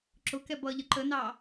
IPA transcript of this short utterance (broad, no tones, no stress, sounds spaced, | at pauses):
ǁ ʊ k ɛ b ʌ ʎ ə ǃ ə n ɑ